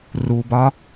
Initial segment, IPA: r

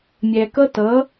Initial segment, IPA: mʲ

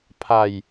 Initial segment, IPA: pʰ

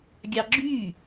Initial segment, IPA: ɡʲ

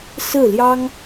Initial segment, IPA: s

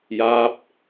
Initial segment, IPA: j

